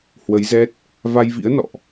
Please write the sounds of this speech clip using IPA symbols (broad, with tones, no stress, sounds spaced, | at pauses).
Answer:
h w ə˨˦ j z ɛ˦˥ t̚ | v a˧ j v ḭ˧˥ ə̯ n ɔ̰˧˨ ʔ